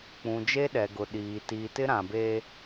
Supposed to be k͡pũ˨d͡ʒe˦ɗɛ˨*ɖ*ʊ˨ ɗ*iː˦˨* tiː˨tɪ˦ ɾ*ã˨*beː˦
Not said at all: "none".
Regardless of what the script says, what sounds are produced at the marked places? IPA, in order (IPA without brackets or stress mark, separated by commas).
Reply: ɡ, iː˨, ã˨